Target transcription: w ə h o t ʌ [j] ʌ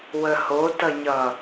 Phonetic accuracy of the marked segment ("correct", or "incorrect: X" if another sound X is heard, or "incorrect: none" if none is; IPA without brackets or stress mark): incorrect: ɲ